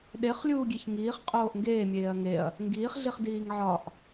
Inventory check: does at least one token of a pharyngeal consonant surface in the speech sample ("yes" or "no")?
yes